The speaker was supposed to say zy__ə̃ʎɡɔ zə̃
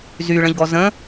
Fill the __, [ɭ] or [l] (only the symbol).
ɭ